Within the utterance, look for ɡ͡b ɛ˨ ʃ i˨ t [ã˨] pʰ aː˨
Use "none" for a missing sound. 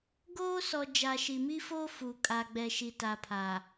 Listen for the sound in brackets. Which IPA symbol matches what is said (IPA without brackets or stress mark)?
a˨